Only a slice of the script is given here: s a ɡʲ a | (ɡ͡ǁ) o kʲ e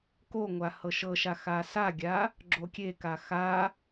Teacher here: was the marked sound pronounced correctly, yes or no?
yes